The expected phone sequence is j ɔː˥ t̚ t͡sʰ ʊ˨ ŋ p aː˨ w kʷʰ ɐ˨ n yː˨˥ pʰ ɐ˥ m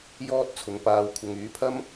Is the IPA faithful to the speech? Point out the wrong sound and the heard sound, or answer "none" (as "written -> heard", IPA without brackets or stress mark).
n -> ŋ